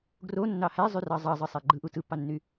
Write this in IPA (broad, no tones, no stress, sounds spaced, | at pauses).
ɡ r o nː ɑ h æ zˤ y r ɑ zˤ ɑ zˤ ɯ sˤ æ ɡ͡ǃ ɯ ʔ u t ɯ pː ɑ nː y